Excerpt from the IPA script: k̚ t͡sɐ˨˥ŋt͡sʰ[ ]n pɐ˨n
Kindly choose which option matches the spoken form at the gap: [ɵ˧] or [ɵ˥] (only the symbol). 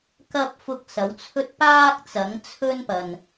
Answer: ɵ˥